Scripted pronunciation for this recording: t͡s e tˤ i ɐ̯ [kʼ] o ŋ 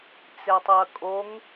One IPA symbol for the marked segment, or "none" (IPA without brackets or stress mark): kʼ